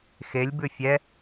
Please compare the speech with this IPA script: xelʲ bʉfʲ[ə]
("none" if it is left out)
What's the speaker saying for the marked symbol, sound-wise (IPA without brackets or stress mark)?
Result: ɛ